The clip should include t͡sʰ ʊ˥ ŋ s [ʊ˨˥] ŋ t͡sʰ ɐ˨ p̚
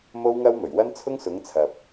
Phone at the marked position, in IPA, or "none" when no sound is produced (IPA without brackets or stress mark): ʊ˨˥